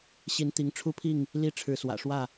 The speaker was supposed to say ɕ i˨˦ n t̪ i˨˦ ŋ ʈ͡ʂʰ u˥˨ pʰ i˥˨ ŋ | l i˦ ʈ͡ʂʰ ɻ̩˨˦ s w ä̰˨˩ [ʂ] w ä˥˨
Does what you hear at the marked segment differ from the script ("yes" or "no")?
no